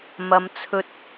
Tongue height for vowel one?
low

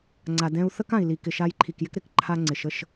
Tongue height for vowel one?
low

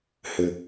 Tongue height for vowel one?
high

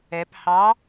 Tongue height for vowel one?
mid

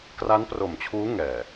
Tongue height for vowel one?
low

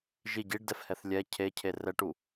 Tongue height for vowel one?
high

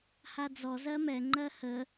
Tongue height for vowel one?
low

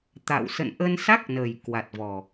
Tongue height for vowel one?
low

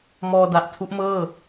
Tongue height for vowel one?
mid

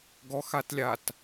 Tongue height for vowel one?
mid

